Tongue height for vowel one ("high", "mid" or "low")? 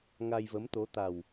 low